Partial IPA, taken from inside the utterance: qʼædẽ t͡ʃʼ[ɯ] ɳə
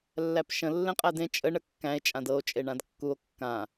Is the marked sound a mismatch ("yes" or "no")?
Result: yes